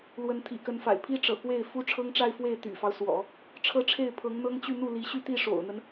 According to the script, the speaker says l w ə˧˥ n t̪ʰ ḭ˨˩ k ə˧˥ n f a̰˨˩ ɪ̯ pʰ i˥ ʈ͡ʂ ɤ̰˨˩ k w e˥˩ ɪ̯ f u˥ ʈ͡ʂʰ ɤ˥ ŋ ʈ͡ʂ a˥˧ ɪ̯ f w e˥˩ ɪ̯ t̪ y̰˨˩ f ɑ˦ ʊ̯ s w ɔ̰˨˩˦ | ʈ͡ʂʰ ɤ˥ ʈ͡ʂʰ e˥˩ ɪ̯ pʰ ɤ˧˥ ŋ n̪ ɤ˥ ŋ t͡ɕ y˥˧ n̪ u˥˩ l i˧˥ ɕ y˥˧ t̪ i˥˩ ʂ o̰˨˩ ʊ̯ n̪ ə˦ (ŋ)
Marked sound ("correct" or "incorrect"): incorrect